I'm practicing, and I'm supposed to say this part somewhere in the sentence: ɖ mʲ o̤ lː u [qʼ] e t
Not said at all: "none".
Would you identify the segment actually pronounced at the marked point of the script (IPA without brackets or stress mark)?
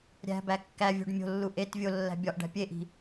ʔ